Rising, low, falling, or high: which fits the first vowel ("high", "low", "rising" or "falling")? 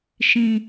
low